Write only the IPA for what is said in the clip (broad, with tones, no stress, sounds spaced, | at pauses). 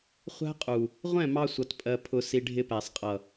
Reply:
χʷ æ̤˦ qʼ u˨ | ʁʷ ɛ̃˦˨ m ɑ˧ sʷ ʌ˧ t pʼ ɜ˧ pʰ ʊ˧ s i˧ ɖʱ ɪ˧ p æ˨ sˤ qʼ ʌ˨